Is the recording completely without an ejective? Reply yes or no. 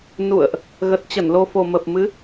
yes